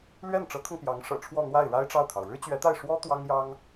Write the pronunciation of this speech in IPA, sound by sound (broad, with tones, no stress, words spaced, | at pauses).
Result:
lɥɛ˥˩nʈ͡ʂɤ˧˥kʰʊ˧ŋ pjɑ˧˥ŋʂɤ̰˨˩ ʈ͡ʂʰwɔ˥˧n̪wa˥˩ɪ̯ ɻa˥ɪ̯ʈ͡ʂɑ˥˩ʊ̯t̪ʰɑ˩ʊ̯ ɻɻ̩˥t͡ɕɥɛ˧˥t̪a˥˩ɪ̯ ʂwɔ˥ t̪wɑ˥ŋjɑ˥ŋ